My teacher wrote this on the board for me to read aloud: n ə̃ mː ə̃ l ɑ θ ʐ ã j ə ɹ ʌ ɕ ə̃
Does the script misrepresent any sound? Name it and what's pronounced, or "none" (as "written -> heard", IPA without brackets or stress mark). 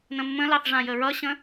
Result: none